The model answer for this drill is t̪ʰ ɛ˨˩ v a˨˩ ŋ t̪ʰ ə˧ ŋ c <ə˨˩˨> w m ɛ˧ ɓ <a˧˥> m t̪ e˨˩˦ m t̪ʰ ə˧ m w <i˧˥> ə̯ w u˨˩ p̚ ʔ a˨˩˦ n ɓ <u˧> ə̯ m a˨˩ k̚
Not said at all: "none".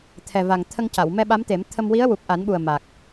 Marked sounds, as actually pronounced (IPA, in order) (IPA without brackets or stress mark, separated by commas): a˨˩˨, a˧˥, i˧˥, u˨˩